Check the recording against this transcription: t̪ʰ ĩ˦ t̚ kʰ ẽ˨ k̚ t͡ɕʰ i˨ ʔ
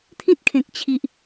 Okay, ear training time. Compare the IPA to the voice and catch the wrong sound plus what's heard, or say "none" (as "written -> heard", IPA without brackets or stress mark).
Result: none